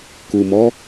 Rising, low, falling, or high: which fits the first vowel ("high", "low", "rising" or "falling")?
low